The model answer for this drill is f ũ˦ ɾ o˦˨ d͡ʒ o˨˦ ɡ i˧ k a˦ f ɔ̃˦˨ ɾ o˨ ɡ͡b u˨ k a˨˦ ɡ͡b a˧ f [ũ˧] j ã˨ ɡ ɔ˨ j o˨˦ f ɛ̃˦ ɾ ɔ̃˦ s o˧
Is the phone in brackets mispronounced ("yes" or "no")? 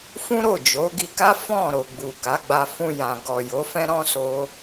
no